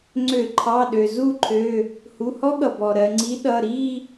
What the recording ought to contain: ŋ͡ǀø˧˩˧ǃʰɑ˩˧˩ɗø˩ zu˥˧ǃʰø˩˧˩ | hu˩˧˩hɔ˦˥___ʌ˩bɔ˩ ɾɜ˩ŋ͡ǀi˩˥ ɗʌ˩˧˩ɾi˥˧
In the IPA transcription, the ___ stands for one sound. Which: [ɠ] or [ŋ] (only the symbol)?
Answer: ɠ